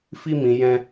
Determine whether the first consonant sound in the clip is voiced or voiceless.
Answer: voiceless